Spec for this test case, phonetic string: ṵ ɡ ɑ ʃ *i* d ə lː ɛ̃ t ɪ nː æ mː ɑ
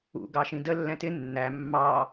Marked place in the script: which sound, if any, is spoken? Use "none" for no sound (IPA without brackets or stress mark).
ĩ